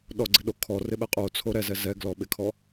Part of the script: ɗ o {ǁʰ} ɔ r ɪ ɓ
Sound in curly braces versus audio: incorrect: kʰ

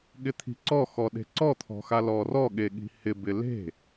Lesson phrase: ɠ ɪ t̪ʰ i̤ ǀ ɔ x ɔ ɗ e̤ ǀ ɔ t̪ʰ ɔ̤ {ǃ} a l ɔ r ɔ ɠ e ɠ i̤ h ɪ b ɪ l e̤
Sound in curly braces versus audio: incorrect: x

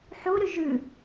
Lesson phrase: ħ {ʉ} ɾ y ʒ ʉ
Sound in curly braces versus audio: incorrect: u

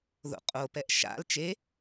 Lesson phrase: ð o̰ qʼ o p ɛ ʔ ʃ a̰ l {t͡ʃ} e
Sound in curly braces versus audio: correct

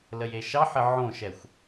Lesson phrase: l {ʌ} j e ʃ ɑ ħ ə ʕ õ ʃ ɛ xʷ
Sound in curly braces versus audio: incorrect: ə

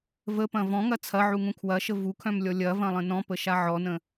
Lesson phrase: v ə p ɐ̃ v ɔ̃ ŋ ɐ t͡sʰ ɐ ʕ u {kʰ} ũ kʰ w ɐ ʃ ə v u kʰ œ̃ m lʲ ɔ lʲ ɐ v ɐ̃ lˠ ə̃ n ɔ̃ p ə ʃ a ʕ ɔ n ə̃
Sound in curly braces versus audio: incorrect: ŋ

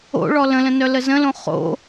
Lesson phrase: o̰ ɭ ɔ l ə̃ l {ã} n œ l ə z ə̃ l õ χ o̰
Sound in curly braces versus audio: incorrect: ə̃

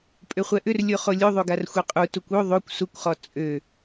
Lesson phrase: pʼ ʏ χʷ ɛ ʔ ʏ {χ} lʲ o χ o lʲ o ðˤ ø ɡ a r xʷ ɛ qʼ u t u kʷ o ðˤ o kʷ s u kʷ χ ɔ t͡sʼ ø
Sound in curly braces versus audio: incorrect: r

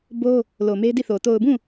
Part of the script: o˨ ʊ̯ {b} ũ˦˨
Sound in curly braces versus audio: correct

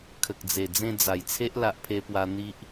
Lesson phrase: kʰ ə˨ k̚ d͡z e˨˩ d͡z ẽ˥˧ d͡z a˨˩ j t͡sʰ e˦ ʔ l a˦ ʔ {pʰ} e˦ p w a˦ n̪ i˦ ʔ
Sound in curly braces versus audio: correct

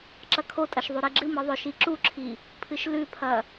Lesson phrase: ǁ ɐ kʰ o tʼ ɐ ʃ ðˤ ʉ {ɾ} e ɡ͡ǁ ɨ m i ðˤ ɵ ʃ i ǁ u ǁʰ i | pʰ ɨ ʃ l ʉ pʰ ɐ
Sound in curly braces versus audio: correct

